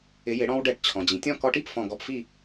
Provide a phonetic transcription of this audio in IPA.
ɪ˨˥jɪ˨˥ ɽɔ̃˧wɖɛ˧˩ʈ t͡ɕʰɔ̃˩d͡ʑĩ˩tʲɔ̃˥˨ kɔ˧ʈi˥˨p fɔ̃˧˩ɡɔ˧pfi˥˨

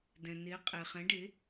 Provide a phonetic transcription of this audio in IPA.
dɛ̃˩ne˩˥qʼe˩χɛ̃˩˥ ɖe˩˥

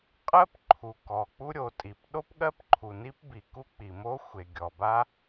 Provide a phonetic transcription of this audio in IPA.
qʼɜ˥pǃʰu˩ kɔ˩k͡pu˥ɾʲo˩tʼi˩p ɗo˥pɠɜ˥pǃʰu˩ ni˥pbi˩ ku˥k͡pi˩mo˥xʷe˩ ɡʲɔ˩ba˥

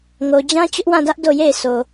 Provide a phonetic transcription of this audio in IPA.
ŋo˨d͡ʑã˦ t͡ɕʊ˦ʔwã˦˨dä˦ʔ do˦˨je˦˨ɪ̯so˨

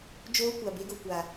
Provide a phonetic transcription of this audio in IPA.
d͡ʒoː˦ kʷa˨be˦ɡo˨ kʷa˨

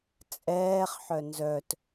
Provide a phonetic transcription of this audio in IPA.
t͡sʼɛːχħœ nzœt

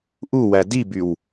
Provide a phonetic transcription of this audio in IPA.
ʔuwæ dibyw

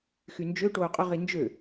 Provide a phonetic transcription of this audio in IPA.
xynd͡ʒø ʈoːqʼʊ ʁind͡ʒø

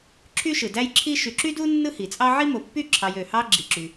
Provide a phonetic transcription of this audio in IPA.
ǁʰy˥ʃɯ˩dæ˥jǁʰi˥ ʃy˨ǁy˥du˥ nːɯ˥hi˩t͡sʼɑ˥ ʕi˥mo˨pːy˥ ǁʰɑ˨jø˩hɑ˦ ɡ͡ǁi˩ǁy˩

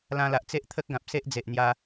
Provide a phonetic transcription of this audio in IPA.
lã˧ la˨ʔt͡se˦ʔt̪ʰə˦k̚ ɡã˨p̚se˦ʔ d͡ze˨ʔn̪ja˧

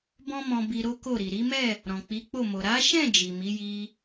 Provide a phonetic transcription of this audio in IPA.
bɔ̃˦mɔ̃˧ bi˧ɾo˦ko˦˨ɾi˨ ɾi˨˦mɛ˦˨ | ɾɔ̃˨k͡pi˨˦k͡po˦˨mo˨ ɾa˨˦ʃɛ̃˦˨ d͡ʒi˨mi˨˦ ji˧

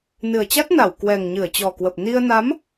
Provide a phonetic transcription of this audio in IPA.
nɨ˨˩ə̯t͡ɕa˦˥t̚na˧˩w kwɛ˨˩ŋɲɨ˧˩ə̯t͡ɕɔ˨˩kwə˨˩p̚ ni˧ə̯ na˨˦m

